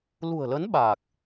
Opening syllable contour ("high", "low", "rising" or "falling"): low